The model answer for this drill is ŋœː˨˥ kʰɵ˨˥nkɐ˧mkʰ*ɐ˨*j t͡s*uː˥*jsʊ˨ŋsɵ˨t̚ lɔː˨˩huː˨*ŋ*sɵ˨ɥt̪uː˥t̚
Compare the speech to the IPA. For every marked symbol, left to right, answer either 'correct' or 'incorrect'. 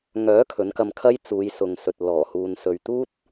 incorrect: ɐ˥, incorrect: uː˨˧, incorrect: n

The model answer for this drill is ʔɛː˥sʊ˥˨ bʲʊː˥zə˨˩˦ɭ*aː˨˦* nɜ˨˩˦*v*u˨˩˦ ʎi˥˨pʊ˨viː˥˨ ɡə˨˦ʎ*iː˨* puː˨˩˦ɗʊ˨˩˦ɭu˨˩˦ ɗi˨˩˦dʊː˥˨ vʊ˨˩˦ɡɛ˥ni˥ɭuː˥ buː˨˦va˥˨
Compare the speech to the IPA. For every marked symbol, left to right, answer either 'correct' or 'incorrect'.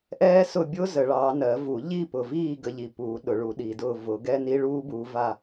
incorrect: ɑː˨˦, correct, incorrect: i˨

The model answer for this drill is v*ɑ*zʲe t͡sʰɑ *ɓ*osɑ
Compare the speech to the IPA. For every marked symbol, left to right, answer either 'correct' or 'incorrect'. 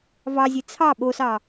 correct, correct

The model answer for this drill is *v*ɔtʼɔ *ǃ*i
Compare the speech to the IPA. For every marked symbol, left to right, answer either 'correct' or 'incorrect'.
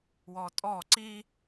incorrect: w, incorrect: ǀ

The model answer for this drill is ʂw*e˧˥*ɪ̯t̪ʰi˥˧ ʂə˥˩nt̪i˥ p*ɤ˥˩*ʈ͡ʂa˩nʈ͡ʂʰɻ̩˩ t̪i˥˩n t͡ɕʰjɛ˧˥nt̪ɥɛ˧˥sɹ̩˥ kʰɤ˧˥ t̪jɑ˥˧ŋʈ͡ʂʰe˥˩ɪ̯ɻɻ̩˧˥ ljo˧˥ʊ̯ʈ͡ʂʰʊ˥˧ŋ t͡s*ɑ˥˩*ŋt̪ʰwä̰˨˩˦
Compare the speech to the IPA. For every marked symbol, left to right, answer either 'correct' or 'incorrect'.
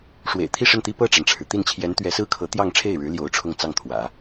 incorrect: ḛ˨˩, correct, correct

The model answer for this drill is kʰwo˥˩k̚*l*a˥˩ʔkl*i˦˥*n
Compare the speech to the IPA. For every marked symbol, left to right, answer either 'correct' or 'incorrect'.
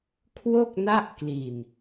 incorrect: n, incorrect: i˨˩

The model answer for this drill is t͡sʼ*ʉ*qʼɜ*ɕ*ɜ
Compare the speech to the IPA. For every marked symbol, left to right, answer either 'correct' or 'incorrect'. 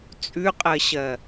correct, correct

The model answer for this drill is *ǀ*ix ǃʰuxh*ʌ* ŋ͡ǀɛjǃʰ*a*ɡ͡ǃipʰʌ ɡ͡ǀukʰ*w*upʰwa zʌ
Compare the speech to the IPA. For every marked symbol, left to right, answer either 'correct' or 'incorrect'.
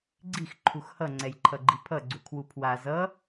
incorrect: ɡ͡ǀ, correct, incorrect: ʌ, correct

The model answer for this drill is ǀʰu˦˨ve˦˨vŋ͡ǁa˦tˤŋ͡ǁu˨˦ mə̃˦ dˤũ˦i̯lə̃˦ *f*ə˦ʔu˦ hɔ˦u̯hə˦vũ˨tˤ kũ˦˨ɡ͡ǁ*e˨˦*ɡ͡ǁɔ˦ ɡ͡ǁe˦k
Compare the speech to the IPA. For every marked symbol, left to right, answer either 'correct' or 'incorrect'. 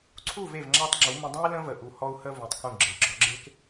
incorrect: v, correct

